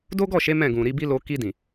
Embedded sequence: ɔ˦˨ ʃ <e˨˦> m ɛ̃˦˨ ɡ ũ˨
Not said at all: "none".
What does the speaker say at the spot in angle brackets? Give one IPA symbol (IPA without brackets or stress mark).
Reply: e˨˦